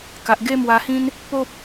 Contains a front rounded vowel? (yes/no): no